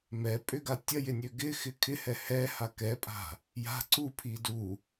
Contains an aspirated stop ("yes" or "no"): yes